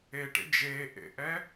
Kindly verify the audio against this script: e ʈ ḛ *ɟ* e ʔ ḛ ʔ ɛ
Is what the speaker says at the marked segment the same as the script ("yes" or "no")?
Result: no